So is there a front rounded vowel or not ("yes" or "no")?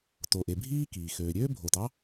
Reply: yes